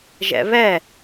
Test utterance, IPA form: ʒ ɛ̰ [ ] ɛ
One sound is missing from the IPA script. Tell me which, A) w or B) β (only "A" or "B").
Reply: B